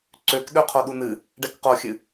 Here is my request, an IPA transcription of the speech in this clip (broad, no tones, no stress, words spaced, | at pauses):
ǀøkɗø qʰoɗunɨ | ɖɛkqoxʲɨ